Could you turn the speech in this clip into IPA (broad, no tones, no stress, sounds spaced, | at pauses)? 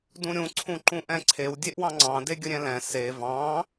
d ũ ɾʲ ũ ǀʰ ũ ǃ ũ ʔ ɛ̃ ǀʰ e w dʲ e ʔ w ɑ̃ ŋ͡ǀ ɑ̃ d e ɡʲ ə ɾʲ ɛ̃ l ɛ̃ s e v ɑ̃